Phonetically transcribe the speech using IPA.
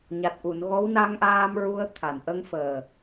ɲ a˨˩ t̚ ʔ u˨˩˨ n ɣ ɔ˧˥ w n a˧ ŋ ʔ aː˧ m ɹ u˧ ə̯ t̪ʰ a˨˩˨ n ʔ ə˧ ŋ f əː˨˩

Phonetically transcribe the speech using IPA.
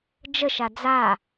d͡ʒ ə ʃ a d͡z a

